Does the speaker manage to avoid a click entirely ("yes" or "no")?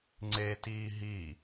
no